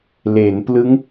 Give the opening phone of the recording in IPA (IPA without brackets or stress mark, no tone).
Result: l